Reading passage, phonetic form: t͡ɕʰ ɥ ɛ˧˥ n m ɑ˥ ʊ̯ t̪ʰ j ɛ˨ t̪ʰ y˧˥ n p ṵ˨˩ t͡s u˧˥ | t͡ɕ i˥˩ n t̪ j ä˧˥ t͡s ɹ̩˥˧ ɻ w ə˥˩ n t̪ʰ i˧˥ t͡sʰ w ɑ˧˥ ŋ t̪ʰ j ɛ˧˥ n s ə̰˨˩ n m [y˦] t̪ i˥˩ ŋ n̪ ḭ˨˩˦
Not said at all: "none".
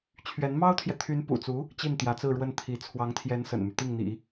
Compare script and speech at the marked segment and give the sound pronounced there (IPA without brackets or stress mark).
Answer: y˦